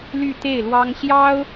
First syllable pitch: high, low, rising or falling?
falling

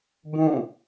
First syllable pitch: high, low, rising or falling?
falling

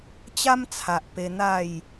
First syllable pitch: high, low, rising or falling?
high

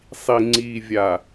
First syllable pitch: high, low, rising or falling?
low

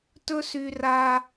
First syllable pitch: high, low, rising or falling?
high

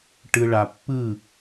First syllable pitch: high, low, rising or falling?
low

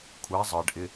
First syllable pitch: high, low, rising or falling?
rising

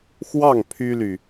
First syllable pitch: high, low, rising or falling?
falling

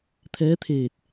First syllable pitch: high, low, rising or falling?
rising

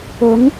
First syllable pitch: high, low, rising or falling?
rising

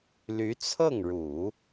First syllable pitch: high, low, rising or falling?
rising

